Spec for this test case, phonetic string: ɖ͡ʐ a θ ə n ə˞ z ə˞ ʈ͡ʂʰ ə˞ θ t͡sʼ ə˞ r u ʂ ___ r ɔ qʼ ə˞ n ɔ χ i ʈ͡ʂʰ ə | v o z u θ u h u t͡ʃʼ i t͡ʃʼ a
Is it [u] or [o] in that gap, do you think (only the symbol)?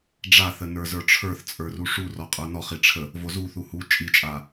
u